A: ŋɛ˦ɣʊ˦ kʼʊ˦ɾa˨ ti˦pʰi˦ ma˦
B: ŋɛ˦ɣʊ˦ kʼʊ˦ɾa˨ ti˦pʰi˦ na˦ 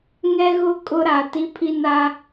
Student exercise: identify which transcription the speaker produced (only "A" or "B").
B